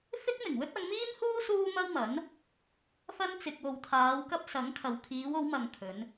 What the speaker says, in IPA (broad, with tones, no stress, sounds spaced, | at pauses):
f ɪ˥ k̚ m ɪ˨˩ ŋ w ɵ˥ t̚ ɐ˨˧ ŋ m iː˥ m h uː˥ s uː˥ m ɐ˥ w m ɐ˨˥ n | f ɐ˥ n t͡s ɪ˨ k̚ w o˨ w t̪ʰ aː˨˧ w k ɐ˥ p̚ s ɐ˨˥ ŋ kʰ ɐ˨ w kʰ iː˨˧ w o˨˧ w m ɐ˨ ŋ kʰ ɵ˨˧ n